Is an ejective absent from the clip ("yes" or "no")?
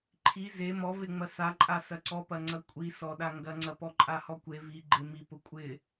no